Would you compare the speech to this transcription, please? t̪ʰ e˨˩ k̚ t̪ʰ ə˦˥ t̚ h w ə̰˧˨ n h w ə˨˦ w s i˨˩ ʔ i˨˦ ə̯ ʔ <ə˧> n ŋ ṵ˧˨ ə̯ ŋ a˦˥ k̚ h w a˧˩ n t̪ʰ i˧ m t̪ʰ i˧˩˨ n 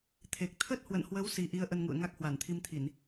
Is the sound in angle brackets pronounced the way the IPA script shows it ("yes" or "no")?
yes